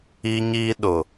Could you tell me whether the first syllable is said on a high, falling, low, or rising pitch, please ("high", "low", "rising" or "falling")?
high